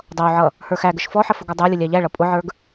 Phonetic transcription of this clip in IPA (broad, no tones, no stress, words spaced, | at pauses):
dˤʌwʕʌ | hə˞xæɡəʃ fɔħə fʊɡɔdˤə˞lʲə lʲæʎæɭʌ pʼʊʕə˞ɡ